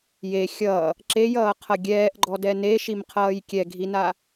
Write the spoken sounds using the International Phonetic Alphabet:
j e xʲ ʌ | ǁ e j ʌː qʰ ʌ ɡʲ ɛː ʔ ɡ͡ǃ ɔ d ɛ n e ʃ i m qʰ ʌː j kʲ ɛ ɡʱ i n a

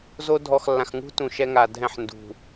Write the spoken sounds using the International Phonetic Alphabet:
z o˦ dʱ ɔ˨ x lː ã˨ x ŋ ṳ˦ t ũ˨ ʃ ɛ˦ ŋ a˨ dʱ ɛ̃˦˨ ħ n d ṳ˨

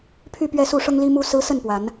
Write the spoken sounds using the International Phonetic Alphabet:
pʰ y˥˨ p ɥ ɛ˥˨ s u˥˨ ʂ ʊ˦ ŋ l i˦ m u˦ s ɹ̩˦ s ə˥˨ n p w a˨˦ n

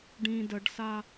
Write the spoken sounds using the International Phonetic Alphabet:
ɖ ĩ d ə ɖ s a

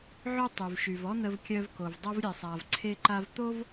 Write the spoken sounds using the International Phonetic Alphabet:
ʕ ø˥ tˤ y˩ v ʃ y˩ v ɔ˥ n̪ ə˧ v kʲ œ˧ v k o˩ v dˤ o˧ v ɾʲ e˩ sˤ a˩ v ǀʰ e˧ ǃ a˧ v t̪ o˥ v

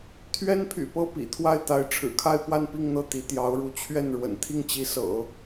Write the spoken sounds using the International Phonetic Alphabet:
t̪ʰ ɥ ɛ˥ n pʰ y̰˨˩ p ɤ˥˩ p ḭ˨˩ t̪ʰ w a˥˩ ɪ̯ t̪ a˧˥ ɪ̯ ʈ͡ʂʰ ɻ̩˨˩ kʰ a˥˧ ɪ̯ p w a˥˧ n p i˥˧ ŋ n̪ ɤ˥˩ t̪ i˧˥ t̪ j ɑ˧˥ ʊ̯ ɻ u˧˥ t͡ɕʰ ɥ ɛ˥˩ n ɻ w ə̰˨˩ n t̪ʰ i˥˩ ŋ t͡ɕ i˧˥ s ɤ̰˨˩˦

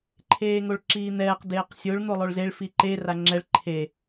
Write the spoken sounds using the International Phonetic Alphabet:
ǃʰ eː ŋ o ɭ ǁ iː n̪ ɛː q d eː q sʲ o ɭ n̪ o lˠ o ɭ z e ɭ f i ǃ e r a ŋ͡ǁ ɛ ɭ ǃʰ e

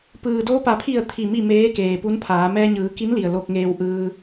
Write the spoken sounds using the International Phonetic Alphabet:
p ɯː˩ d oː˧ p a˩ pʰ i˧˩ ə̯ t̪ʰ i˧˩ m i˥˨ m eː˧˥ k eː˩ p u˧˥ n pʰ aː˩˧ m ɛː˧ ɲ ɯː˩˧ k i˧˥ n l i˩ ə̯ l o˧ k̚ ŋ eː˧ w ʔ ɯː˧

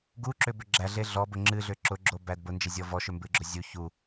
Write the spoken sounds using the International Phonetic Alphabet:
ɡ u ǁ ʏ b ʏ ɡ͡ǁ æ ɮ e ɮ ɔ b ʊ ŋ͡ǁ ɨ ɮ ʏ ǁ ʊ ɡ͡ǁ o b æ d b ʊ n d͡ʒ e zʲ ɔ v ɔ ʃ ʏ m b ɨ ɡ͡ǁ ʊ zʲ u ç u

